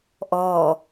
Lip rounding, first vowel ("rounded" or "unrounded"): rounded